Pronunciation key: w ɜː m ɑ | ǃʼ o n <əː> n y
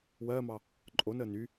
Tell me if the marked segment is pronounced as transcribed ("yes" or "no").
yes